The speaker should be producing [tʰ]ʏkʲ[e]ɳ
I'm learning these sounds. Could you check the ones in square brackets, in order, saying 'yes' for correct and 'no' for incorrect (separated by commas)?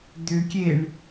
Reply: no, yes